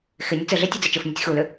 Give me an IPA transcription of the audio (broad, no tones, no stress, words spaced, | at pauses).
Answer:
xɪ nʲət͡sɘɮɛ tʲud͡zɪt͡ʃɘfnʲətʲ xulʏ